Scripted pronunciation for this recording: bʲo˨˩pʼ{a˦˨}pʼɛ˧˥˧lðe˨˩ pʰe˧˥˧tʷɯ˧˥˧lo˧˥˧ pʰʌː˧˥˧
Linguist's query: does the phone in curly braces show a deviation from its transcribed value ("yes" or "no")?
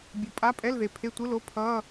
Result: yes